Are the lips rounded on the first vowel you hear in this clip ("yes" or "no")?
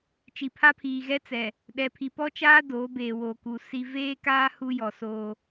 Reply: no